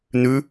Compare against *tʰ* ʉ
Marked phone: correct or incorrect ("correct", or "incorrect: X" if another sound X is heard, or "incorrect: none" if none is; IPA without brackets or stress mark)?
incorrect: n̪